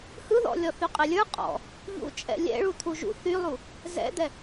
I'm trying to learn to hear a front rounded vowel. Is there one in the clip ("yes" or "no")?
yes